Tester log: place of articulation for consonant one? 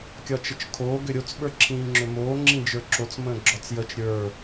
velar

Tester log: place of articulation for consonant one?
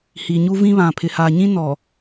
glottal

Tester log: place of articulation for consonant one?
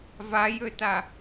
labial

